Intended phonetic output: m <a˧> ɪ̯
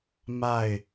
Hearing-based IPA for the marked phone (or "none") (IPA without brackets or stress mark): a˥˨